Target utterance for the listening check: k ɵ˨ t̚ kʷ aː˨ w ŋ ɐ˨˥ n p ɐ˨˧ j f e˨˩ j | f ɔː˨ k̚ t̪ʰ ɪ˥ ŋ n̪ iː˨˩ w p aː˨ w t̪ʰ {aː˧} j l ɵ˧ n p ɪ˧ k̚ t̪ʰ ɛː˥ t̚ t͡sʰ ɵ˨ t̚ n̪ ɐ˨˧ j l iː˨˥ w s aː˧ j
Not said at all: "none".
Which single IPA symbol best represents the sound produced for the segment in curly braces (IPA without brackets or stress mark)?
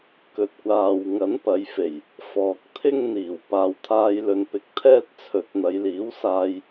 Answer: aː˧